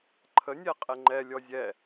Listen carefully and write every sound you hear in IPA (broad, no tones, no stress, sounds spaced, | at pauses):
ǃʰ ə nʲ ɛ qʼ ɛ ŋ͡ǃ ɛ lʲ ɔ zʲ ɛ